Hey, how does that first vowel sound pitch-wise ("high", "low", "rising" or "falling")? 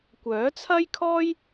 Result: rising